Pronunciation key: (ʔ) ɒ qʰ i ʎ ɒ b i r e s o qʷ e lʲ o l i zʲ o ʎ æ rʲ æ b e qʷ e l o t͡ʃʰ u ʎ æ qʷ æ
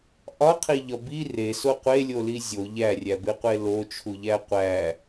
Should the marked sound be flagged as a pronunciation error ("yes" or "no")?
no